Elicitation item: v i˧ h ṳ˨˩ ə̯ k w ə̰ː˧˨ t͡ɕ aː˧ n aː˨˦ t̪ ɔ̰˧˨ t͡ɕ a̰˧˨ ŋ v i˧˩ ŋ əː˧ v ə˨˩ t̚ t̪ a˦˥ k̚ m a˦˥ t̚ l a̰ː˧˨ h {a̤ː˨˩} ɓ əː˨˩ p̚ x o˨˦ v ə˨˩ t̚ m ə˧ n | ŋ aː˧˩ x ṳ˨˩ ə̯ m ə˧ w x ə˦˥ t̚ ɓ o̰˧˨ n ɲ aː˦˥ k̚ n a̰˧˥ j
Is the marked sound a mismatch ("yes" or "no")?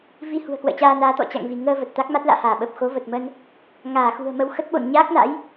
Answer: yes